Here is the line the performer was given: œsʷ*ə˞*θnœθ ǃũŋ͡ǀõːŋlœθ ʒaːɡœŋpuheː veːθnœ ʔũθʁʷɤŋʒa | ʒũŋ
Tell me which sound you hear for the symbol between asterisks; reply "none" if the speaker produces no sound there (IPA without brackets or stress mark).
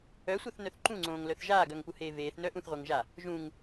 ɤ